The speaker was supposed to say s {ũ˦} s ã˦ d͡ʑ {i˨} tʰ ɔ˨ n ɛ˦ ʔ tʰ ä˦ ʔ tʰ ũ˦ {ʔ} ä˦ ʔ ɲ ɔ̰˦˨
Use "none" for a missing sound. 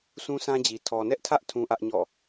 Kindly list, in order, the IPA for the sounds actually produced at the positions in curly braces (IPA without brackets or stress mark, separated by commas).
ũ˦, i˨, ʔ